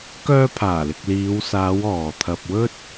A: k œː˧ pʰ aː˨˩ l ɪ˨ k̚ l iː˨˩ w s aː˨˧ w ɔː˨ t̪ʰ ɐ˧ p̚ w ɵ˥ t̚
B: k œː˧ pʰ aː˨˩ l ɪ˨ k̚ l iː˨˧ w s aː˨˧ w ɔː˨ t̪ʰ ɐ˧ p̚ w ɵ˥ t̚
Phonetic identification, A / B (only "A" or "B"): B